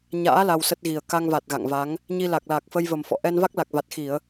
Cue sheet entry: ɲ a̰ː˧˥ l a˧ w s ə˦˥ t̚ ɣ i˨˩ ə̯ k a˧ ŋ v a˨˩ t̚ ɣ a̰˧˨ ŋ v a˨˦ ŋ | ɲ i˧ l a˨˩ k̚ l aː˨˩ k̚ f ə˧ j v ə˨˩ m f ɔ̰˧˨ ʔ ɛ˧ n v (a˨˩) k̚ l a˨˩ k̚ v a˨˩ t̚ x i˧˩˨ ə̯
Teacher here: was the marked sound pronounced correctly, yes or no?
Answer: no